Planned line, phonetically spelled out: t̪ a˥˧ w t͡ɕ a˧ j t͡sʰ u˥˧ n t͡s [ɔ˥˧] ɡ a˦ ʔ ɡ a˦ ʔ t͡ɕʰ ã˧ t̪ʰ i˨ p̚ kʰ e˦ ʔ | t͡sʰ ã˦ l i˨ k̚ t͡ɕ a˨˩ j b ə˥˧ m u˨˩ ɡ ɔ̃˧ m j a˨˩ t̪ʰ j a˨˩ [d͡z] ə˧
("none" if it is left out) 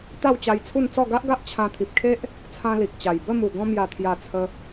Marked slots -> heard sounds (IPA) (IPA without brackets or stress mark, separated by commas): ɔ˥˧, t͡sʰ